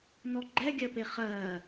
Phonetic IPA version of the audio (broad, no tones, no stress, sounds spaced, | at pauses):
n ɔ ɡ͡ǃ ɛ ɡʲ ɜ p e χ ɜː